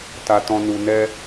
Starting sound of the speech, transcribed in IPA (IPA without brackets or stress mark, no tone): t